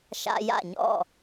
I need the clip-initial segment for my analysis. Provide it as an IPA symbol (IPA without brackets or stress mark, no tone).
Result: ʃ